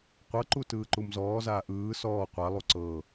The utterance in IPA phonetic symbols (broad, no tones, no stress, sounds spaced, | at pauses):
qʷ ɤ ǃ u t ɯː ǃ u m z ɔː z aː ʔ ɯː s ɔː qʷ a lˠ u ǀ ɤ